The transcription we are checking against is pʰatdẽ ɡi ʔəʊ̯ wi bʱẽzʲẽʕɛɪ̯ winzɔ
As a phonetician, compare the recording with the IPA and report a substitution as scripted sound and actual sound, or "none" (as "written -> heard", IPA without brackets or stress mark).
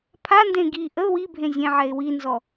t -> n